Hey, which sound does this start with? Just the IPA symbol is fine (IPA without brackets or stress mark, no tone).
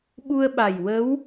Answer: ɓ